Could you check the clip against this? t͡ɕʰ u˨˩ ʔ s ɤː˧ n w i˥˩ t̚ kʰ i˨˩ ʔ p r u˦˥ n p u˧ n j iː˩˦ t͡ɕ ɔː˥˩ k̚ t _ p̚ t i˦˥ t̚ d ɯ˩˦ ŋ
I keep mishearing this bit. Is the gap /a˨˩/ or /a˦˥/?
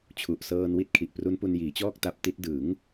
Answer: a˦˥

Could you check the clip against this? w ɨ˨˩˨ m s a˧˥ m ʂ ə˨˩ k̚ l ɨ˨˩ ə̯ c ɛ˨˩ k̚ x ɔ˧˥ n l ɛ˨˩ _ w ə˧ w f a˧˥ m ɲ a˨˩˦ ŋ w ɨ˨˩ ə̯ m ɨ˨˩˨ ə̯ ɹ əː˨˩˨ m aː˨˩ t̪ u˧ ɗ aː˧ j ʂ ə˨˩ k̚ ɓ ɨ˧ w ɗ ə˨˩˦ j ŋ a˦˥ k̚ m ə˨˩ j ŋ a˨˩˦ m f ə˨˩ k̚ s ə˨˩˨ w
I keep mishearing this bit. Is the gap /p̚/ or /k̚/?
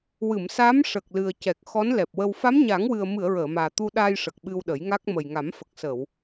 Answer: p̚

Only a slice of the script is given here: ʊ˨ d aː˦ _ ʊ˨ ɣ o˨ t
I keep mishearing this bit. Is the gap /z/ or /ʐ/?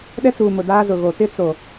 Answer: z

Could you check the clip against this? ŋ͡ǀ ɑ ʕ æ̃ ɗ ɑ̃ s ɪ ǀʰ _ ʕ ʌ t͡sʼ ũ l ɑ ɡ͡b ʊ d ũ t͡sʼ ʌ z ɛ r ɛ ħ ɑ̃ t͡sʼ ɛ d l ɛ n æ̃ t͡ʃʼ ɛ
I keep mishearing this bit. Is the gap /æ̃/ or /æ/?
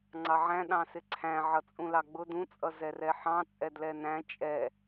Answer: æ̃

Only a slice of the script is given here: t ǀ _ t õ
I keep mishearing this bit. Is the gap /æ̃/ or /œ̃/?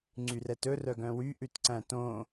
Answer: æ̃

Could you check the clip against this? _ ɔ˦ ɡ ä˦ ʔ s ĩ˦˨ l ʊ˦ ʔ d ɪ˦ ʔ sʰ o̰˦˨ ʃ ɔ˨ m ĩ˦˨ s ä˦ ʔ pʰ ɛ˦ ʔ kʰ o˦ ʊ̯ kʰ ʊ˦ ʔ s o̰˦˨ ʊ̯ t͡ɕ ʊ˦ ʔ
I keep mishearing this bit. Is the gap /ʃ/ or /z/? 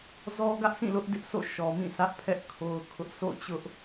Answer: z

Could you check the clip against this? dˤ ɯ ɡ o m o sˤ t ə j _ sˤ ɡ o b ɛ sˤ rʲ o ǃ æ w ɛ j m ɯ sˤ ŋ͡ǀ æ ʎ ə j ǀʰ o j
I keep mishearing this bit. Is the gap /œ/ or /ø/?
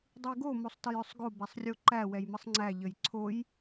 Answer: œ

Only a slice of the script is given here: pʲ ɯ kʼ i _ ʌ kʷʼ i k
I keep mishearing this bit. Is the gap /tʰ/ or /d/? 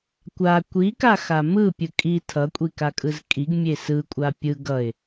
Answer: tʰ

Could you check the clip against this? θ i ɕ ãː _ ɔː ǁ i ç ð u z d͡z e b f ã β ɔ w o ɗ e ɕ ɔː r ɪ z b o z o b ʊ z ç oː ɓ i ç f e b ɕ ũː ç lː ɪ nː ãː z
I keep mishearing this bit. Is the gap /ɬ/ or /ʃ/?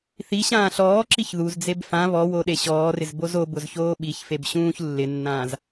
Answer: ɬ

